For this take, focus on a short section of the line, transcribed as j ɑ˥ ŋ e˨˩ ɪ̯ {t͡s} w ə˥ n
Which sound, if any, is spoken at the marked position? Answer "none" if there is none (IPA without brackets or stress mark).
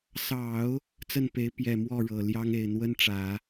n̪